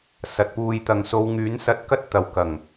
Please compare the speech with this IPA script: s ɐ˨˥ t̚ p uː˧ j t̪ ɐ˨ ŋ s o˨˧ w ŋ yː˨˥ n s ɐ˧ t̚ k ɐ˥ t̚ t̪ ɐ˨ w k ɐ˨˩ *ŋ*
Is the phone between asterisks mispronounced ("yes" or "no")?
no